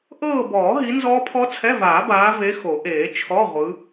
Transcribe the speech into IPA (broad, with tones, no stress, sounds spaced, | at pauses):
ʔ ɤː˦˨ b ɔː˨˩˦ ɦ i˨˦ n z ɔː˦˥ pʰ ɔ˦˥ t͡sʰ ɛ˧˥˧ v aː˨˩˦ b aː˨˦ v e˨˦ x o˨˩˦ ʔ eː˨˩˦ t͡ʃʰ ɔ˧˥˧ ʁʷ ɯ˨˦